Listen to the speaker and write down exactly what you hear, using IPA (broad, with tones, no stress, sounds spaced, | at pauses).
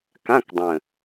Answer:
k ã˧˥˧ k dˤ ə̃˨˩